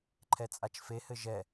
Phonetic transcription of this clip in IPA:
ǃʰ ɛ t͡sʼ a t͡ʃ f e h ɘ ʒ ɛ

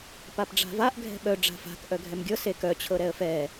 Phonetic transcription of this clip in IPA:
p a p ɖ͡ʐ a̤ v a ʔ ɡʱ ɛ̤ ɓ œ ɖ͡ʐ a̤ f a̤ k ʔ œ ɡʱ ɛ m ɡʲ ɤ s e k œ t͡ɕʰ ɤ ɾ ɛ ə̯ f ɛ

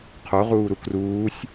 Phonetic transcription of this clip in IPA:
qʰ o ʁ uː ɾ u k r uː sʲ

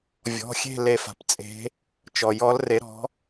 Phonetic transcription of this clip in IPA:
vʲ ɔ̤˩˧˩ xʲ e̤˦˨ l e˦˨ f a̤˧˩˧ p t͡sʼ e̤˨˥ | t͡ʃ ɔ˩ j ɔ˨˥ l r e˨˥ ɾ ɔ̤˨˥

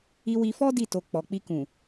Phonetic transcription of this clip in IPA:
i˧ w i˧ f ɔ˦ d i˦˨ t o˨ k͡p ɔ˨ k͡p i˧ k ũ˨

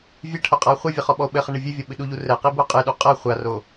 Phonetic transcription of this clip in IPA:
vʲ e ʈʰ o qʼ a o̯ χʷ ɛ vʲ ɘ χ ɔ ɓ ɔ o̯ ɓ ɘ χ ɐ ɳ ɨ vʲ ɨ vʲ ɔ ɓ ɨ ɗ u ʎ u r ɛ q i b o qʼ ɨ ɗ u qʼ ɐ χʷ a r o

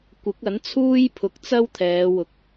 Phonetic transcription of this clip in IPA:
kʷ ɪ˨˥ k̚ ɐ˨˥ n t͡sʰ uː˥ j pʰ ʊ˨ k̚ t͡s ɐ˥ w t̪ʰ ɛː˨˧ w ʊ˨ k̚

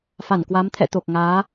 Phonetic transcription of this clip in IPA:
f a˧˩ n k w a˨˦ m t̪ʰ ɛ̰˧˨ t̪ o˨˩ k̚ ŋ aː˨˦

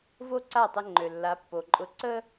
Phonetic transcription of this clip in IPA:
v o˥ ǀ a˥˩ tˤ ə˧ ŋ͡ǃ ø˩ lː a˩˥ pː o˩ ǃʼ ʊ˧ ǀ ə˥

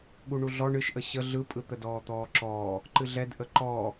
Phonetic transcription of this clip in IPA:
ɠ u ɳ u ɮ ɔ ɳ ɨ ʃ ʔ ə ɕ ə ɮ ɯ pʼ ɯ t̪ ə d ɔː t̪ ɔː ǁ ɔː | ǃ ɨ ɮ ɛ d ʔ ə ǃ ɔː

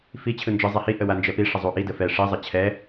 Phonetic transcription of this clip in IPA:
f i t͡ɕʰ ɯ n d͡ʒ ɯ zˤ ɛ h i ʔ ə w a n d͡ʒ ɛ p i ʂ ə zˤ u ʔ i d ə f ɛ ʂ i zˤ ə t͡ɕʰ ɛ

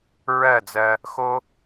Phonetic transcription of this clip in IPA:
ɹ ɜ˦˨ d͡z ɜ˧ | x o˦

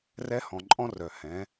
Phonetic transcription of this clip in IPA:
r ɛ˧˥ h ɔ̃˩ ǃʼ ɔ̃˥ r œ˩ h ɛ̃˩˧

